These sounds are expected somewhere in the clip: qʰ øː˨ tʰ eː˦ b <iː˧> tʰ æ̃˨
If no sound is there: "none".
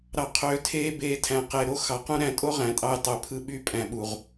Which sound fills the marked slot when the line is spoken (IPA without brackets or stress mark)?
eː˧